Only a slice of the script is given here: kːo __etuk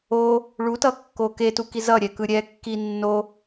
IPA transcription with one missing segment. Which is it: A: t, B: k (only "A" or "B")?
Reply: B